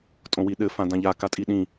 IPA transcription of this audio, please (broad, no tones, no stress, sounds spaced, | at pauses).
tʼ õ w i ɗ ɘ f ã d ã ʎ a k a tʼ i ɗ ĩ